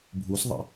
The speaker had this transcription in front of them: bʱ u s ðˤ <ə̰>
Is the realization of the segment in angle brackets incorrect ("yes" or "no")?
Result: no